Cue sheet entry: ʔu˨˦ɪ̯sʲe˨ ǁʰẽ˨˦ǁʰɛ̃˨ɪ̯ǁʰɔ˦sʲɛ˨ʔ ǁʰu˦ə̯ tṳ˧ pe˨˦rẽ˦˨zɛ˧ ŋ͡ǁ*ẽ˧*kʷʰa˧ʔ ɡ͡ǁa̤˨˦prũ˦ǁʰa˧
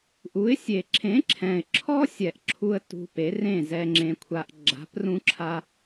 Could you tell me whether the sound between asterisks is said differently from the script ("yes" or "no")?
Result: no